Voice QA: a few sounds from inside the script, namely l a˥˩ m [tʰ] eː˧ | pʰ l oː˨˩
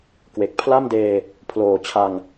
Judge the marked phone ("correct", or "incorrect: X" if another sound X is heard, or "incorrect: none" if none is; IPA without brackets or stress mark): incorrect: d